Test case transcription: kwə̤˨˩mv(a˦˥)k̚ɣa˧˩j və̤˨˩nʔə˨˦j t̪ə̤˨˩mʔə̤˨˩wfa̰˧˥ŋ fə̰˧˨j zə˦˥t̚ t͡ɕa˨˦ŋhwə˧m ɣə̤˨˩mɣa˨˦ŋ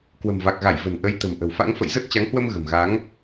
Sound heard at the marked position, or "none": a˨˩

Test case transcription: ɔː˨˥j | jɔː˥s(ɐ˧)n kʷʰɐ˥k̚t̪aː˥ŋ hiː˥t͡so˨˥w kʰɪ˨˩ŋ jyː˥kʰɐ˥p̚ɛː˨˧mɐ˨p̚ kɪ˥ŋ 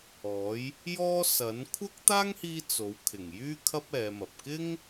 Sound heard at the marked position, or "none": ɐ˨˥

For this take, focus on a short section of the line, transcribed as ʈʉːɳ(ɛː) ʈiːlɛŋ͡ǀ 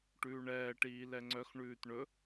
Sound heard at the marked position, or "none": ɛː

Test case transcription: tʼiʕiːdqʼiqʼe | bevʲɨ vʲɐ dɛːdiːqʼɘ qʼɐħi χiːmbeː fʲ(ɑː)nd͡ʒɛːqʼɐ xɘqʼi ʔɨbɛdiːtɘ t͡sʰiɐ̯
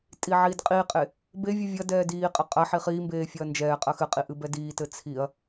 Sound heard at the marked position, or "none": ɐː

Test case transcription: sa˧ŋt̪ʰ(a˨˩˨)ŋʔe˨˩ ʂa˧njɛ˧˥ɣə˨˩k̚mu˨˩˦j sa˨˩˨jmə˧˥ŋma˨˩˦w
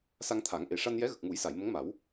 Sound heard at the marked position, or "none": a˨˩˦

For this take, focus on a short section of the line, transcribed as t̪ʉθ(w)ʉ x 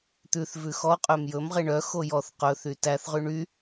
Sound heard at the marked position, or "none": v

